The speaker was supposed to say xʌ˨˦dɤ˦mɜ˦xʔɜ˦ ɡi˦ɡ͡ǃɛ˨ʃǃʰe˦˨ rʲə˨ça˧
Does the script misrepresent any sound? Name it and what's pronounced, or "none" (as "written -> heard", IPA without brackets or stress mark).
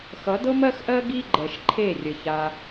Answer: none